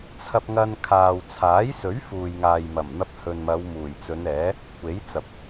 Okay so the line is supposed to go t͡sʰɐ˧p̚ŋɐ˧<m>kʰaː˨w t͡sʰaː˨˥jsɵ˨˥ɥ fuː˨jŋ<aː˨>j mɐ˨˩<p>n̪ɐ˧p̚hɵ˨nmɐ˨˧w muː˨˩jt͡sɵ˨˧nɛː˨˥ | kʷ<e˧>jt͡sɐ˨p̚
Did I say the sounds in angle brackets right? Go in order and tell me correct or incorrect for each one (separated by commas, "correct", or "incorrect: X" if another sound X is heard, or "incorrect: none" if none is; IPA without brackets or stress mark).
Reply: incorrect: n, correct, incorrect: m, incorrect: e˨˥